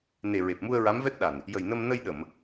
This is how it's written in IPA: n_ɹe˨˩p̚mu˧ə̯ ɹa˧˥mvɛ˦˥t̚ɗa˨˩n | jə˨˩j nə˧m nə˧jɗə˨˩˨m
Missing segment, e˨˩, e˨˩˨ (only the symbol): e˨˩